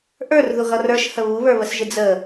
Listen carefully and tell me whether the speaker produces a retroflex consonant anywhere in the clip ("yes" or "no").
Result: no